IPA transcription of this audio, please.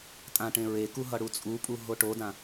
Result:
tʼ ã ʈ ẽ ɹ e k u ɦ ʌ ɽ u t͡sʼ u pʼ u ɦ o ʈ o d ã

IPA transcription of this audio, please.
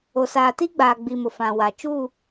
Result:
o˨ s aː˨ t i˦ ɡ͡b aː˨ ɡ͡b i˨ m ʊ˨ f ã˨ w a˨ t͡ʃ u˦˨

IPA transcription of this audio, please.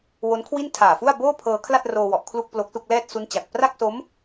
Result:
w o˦˥ n kʰ w i˥˩ n tʰ aː˨˩ f u˥˩ a̯ b oː˥˩ pʰ ɤː˧ kʰ l a˥˩ t̚ r oː˧ w ɔ˨˩ ʔ kʰ l u˥˩ k̚ p l o˦˥ k̚ s u˥˩ k̚ l ɛː˥˩ t̚ s u˦˥ n t͡ɕ a˨˩ k̚ p r a˥˩ k̚ s o˦˥ m

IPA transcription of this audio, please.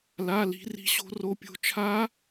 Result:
l a˧˥˧ l i̤˦˥ r i̤˦˥ ɕ o̤˦˥ r o˦˥ pʲ o̤˦˥ t͡ʃʰ a˦˥

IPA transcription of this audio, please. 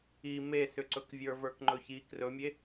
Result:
i m e s ʏ ǀ ɵ k vʲ ə˞ v ə˞ k ŋ͡ǃ ɵ ç i k r ɵ mʲ e

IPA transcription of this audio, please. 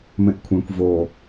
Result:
m ẽ ʔ kʷʰ ẽ kʷ v o

